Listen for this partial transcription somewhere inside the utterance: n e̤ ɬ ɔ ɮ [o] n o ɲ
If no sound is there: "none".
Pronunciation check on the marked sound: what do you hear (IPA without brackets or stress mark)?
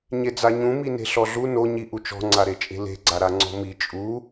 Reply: u